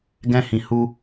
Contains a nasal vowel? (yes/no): yes